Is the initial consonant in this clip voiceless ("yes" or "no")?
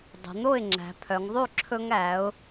no